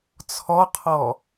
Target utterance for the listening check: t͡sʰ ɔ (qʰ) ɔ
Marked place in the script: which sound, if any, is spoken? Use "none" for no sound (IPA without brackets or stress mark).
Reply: qʰ